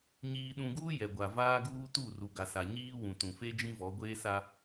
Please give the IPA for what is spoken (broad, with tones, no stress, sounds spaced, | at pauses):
ɲ iː˨ ɗ ũ˨ ɡ uː˦ j ɛ˨ ɡʷ a˨ v aː˦ ɡ uː˦ t u˦˨ r u˨ ɡ a˨ s a˨ ɲ iː˦ w ũ˨ t ũ˨ f e˦ d͡ʒ ĩ˦ v ɔ˨˦ ɡʷ eː˦ s a˦